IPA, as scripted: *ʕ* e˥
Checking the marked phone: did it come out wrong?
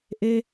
yes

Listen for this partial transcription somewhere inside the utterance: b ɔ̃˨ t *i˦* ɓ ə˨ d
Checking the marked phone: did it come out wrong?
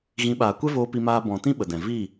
yes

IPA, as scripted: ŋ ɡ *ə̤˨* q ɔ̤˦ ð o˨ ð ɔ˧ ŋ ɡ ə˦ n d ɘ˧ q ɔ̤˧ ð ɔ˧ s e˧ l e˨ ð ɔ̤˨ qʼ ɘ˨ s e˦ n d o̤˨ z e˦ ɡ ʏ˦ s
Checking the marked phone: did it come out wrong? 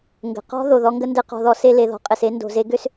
no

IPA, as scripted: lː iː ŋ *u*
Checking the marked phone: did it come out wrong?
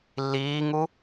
no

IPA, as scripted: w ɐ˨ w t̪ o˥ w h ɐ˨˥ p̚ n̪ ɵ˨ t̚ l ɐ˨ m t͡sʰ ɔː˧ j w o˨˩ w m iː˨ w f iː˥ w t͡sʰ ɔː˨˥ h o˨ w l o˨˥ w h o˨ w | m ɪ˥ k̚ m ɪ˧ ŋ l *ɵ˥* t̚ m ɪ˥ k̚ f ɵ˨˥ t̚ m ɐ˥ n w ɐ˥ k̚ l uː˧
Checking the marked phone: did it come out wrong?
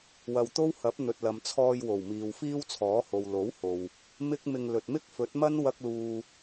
yes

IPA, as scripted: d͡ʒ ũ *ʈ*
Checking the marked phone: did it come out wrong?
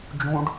yes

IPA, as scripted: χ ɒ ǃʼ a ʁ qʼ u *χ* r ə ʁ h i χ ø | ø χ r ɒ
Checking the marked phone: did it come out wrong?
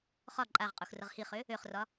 yes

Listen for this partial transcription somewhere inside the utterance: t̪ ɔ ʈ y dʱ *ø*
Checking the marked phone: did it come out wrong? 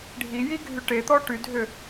no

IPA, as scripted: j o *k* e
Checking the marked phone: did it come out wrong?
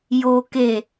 no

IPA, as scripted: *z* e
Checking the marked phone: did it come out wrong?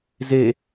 no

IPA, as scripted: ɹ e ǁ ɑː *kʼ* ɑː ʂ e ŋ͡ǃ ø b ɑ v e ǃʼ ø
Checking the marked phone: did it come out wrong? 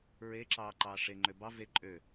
yes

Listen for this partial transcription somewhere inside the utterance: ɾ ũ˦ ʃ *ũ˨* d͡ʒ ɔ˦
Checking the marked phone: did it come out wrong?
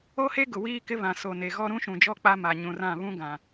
no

